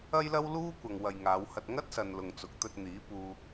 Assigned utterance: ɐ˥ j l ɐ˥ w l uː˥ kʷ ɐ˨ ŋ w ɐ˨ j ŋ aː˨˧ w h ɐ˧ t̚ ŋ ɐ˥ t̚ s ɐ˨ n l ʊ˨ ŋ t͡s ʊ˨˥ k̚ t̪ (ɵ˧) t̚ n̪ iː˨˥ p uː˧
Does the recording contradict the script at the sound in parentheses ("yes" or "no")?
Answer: no